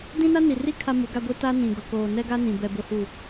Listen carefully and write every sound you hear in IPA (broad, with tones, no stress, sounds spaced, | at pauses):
d ĩ˦ n a˦ n i˨ r i˦ kʰ a˦ m u˨˦ ɡ a˦ ɡʷ e˦ t a˦ n ĩ˨ ɡ ʊ˨ k oː˨ n ɛ˦ ɡ a˦ n ĩ˨ b ɛ˨ b ʊ˨ h u˨